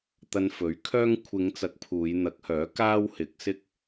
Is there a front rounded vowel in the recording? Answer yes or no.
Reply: yes